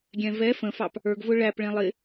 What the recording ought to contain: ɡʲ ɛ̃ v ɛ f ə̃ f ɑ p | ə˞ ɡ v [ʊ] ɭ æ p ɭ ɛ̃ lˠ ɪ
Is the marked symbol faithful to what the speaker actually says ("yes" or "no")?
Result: yes